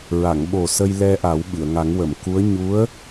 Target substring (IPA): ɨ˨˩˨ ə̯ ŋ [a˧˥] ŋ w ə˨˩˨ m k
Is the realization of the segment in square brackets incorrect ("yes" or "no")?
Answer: yes